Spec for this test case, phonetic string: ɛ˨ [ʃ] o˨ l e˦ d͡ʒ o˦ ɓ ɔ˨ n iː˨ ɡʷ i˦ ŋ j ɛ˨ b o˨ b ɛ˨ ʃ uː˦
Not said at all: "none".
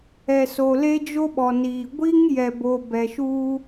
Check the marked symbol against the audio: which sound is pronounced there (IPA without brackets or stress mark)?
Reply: s